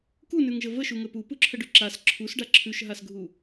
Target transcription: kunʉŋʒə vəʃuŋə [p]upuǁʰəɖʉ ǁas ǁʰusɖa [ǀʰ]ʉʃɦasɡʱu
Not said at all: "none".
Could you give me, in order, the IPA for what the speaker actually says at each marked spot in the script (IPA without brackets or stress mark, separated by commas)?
p, ǁʰ